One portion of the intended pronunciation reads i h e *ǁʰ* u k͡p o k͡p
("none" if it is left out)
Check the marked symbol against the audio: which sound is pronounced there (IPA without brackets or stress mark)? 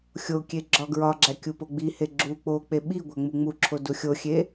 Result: ɡ͡ǁ